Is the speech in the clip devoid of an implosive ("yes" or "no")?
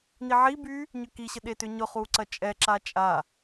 no